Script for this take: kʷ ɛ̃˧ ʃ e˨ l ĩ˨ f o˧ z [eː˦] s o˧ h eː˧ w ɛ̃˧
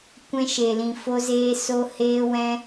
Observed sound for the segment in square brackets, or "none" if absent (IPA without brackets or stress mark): eː˧